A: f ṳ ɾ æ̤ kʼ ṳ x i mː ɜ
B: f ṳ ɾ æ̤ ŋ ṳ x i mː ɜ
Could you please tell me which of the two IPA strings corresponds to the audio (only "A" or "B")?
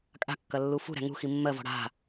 B